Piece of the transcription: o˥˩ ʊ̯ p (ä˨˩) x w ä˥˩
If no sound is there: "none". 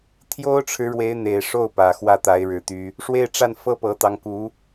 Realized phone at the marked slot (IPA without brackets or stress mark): ä˨˩